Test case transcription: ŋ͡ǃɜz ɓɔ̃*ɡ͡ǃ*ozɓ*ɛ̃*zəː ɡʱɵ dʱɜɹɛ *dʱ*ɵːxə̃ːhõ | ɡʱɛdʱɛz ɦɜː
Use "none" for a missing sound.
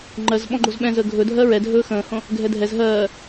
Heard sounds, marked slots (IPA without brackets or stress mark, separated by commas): ɡ͡ǃ, ɛ̃, dʱ